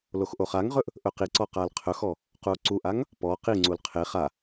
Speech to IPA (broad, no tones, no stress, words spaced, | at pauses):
loxʔoχaŋʁɵʔ | ʔɵqiǀɔ qalqʰɵxɔ | quo̯ǀuʔaŋ | pɔ qiŋ͡ǀul qʰe χa